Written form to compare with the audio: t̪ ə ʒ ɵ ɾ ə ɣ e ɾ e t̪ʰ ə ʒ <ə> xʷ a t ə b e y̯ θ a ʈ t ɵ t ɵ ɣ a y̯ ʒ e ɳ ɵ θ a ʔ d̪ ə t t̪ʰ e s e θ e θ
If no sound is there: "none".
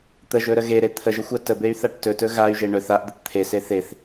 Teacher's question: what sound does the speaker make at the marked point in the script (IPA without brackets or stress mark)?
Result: ə